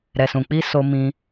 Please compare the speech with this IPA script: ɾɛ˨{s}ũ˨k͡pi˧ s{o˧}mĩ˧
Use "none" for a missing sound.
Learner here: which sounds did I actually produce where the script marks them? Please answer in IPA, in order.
s, o˧

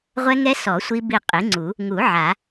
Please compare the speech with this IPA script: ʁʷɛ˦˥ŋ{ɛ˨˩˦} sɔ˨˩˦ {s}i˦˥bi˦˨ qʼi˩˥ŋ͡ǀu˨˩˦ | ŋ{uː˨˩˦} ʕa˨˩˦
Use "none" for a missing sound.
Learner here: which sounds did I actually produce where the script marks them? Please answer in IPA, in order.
ɛ˦˥, sʷ, u˨˩˦

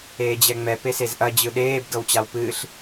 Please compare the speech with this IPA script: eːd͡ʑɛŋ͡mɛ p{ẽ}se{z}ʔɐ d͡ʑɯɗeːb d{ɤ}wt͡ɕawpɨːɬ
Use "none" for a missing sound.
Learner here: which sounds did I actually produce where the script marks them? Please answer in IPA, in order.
e, z, ɤ

